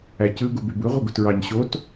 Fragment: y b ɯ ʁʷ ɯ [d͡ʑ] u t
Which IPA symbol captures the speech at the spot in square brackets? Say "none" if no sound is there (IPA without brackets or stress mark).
ɡ